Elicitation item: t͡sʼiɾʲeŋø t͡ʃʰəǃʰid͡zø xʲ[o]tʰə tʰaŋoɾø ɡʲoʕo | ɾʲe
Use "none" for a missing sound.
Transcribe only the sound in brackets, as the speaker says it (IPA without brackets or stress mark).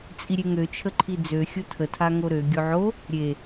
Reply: o